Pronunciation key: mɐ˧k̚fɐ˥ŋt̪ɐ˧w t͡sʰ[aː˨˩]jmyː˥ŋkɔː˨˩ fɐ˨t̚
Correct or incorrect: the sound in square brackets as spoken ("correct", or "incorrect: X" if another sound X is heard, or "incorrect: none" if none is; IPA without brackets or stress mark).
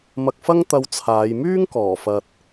incorrect: aː˨˧